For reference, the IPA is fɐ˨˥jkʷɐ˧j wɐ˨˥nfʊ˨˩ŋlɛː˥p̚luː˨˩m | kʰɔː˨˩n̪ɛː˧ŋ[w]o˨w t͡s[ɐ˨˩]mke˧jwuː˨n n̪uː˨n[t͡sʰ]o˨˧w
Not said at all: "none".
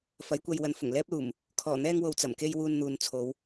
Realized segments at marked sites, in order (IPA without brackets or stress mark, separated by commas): w, ɐ˨˩, t͡sʰ